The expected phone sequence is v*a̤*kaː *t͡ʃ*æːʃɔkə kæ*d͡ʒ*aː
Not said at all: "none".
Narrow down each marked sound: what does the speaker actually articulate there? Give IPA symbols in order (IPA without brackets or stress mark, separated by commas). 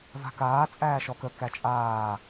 a̤, t͡sʼ, t͡ʃʼ